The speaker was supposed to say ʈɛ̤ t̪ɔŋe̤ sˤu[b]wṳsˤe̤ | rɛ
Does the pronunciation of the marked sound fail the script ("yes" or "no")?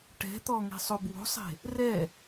no